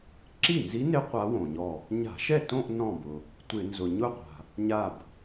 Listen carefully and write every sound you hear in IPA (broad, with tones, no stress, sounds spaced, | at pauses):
ǁ i˥˩ n z i˧˥ n ɪ˧˥ qʷ a˧˥ w õ˩ ɲ ɔ˧˩ | ɲ a̤˧˩˧ ʃ ɛ˥˩ t õ˥˧ ʔ n ɔ̃˧˩ b ʊ˩ | tʷ ɪ˧˩˧ n z ʊ˩ ɲ ʊ˥˧ qʷ a̤˩ | ɲ a˧˩ b